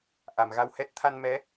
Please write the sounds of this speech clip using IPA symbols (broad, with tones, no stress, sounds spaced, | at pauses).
ʔ a˧˩ m ɣ a˧ w h ɛ˦˥ t̚ t̪ʰ a˧ n m ɛ˨˦